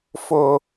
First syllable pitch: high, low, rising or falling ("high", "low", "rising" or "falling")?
high